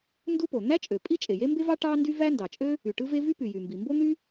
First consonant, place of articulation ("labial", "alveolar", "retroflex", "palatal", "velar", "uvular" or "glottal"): alveolar